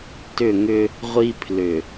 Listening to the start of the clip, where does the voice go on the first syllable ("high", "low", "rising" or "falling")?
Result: falling